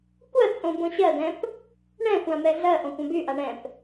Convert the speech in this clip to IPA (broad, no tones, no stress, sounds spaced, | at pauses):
kʷ ɜ t͡sʼ õ b õ ɕ ɜ d ɛ̃ p | ɳ ɛ̃ xʷ ã m ɛ ɮ ɜ ʔ õ kʷ ã b y ʔ a ɳ ɛ̃ p